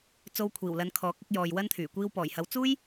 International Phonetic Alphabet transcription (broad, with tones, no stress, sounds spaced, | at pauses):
t͡s o˧ w kʷʰ iː˨˩ w l ɐ˨˧ n kʰ ɔː˨˥ k̚ ɪ˨˥ k̚ j ɔː˨ j w ɐ˥ n t̪ʰ yː˨˩ kʷ iː˧ w p ɔː˨˩ j h ɐ˨˧ w t͡s uː˥ j